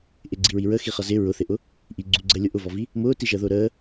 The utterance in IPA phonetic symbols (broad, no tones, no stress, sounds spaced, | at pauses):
ʔ ɪ ɡ͡ǀ i ɹ i ɹ ə x i χ ʌ z ɪ ɹ ʊ θ ɪ ʔ ʊ | ʔ i ɡ͡ǀ u ɡ͡ǀ əː lʲ ʊ ʔ ʊ v ɔ v i | m ʊː t i ʒ əː ð ʊː ɾ əː